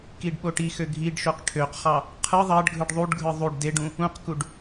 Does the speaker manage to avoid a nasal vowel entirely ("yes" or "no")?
no